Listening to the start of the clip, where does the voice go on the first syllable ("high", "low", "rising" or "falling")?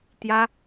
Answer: high